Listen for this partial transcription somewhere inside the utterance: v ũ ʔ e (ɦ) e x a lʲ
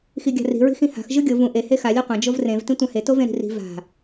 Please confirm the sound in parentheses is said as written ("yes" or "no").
no